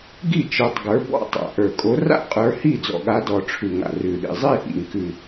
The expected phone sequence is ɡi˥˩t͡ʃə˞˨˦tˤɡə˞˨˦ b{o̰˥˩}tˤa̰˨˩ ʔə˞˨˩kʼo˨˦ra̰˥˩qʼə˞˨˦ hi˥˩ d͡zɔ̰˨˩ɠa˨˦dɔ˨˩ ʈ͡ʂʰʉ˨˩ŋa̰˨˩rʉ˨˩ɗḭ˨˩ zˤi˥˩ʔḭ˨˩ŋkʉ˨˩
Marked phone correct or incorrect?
incorrect